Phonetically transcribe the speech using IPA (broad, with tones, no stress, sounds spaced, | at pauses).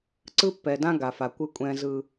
ǀ ɯ˦ pː ɛ˨ d ã˦ ɡ a˨ f a˨ kʷ ɯ˦ kʷʼ ɛ̃˦ z ɯ˦